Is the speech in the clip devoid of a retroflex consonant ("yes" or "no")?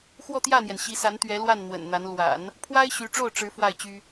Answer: no